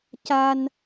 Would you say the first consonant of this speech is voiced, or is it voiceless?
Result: voiceless